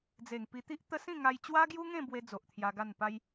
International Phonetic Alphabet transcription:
d͡z e˨˩ ŋ p i˧ t̪ i˦ ʔ t̪ ə˦ s ĩ˥˧ ŋ a˧ j t͡ɕ w a˦ ɡ j u˦ ŋ ẽ˥˧ b w e˦ d͡z o˨ ʔ t̪ʰ j a˧ ɡ a˥˧ n p a˦ j

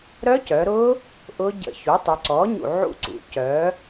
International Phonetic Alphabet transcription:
ɾ œ˦˥ c œ˩˧ ɾ ʊ˦˥ | ʔ ʊ˦˥ ɟ ə̰˧ ç u˩˥ tˤ y˩˧ ǀ ɔ˩˥ ɲ ṵ˧˩ ʕ ṵ˧ ǀ ṵ˩˥ c œ˩˥

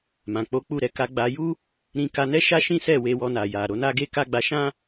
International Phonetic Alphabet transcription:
m ã˨ k͡p o˨˦ k͡p u˦˨ ɾ ɛ˨˦ k a˧ ɡ͡b a˧ j u˦ | ɾ ĩ˧ k a˧ n ɛ˦ ʃ a˦ ʃ ĩ˦ s ɛ˦˨ w e˧ w ɔ˧ n a˨ j a˨ ɾ o˨˦ n a˦ ɡ e˦ k a˦ ɡ͡b a˧ ʃ ã˦

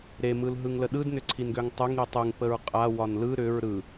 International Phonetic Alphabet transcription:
ɾ e m ɯ l ɦ ɯ ŋ l ə ɗ ɯ d n ʏ ǀʰ i n ɡ ø ŋ tˤ ɯ ŋ ɾ i tˤ ɯ ŋ p ə ɹ qʼ a w ɒ n l ɯ ɾ ʏ ɹ ɾ ɯ

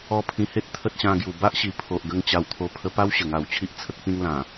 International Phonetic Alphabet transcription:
ɔ˧ pʰ ĩ˨˩ h e˦ t̚ t̪ʰ ə˦ t̚ ɕ ã˧ ɡ j u˨˩ b a˦ ʔ ɕ i˨˩ pʰ o˨ ʔ ɡ ə˧ ŋ t͡ɕ a˧ w t̪ʰ o˧ pʰ ə˧ p a˦ w ɕ ə˨˩ ŋ a˨˩ w t͡ɕʰ i˦ ʔ t͡sʰ ə˦ k̚ p ĩ˦ ŋ l ã˨˩

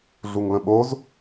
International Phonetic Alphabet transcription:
ɮ u ŋ l ə̃ ɓ o z

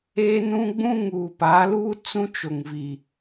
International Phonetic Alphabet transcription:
eː˦ n ũ˦ ɡ͡b ũ˦ ŋ uː˨ p a˨˦ l uː˦ t͡s ũ˦ t͡ʃ o˨ ŋ v i˨

